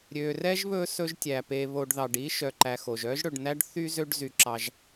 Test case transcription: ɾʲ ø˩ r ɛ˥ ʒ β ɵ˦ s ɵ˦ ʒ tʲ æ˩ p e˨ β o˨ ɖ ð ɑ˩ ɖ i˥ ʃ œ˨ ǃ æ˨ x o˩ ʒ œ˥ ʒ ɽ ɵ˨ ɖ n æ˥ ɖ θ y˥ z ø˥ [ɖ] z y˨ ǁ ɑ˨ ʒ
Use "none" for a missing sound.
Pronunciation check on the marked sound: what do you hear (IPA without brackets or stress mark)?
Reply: ɖ